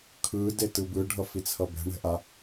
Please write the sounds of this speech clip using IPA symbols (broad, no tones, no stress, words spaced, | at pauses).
kʰɯ detɯbɯ ɖʱʌfit͡sʰʌbɛ̤ ɳɛ̤ʔa